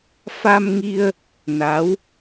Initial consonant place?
labial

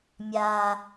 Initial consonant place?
labial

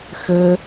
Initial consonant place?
velar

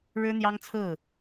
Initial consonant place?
retroflex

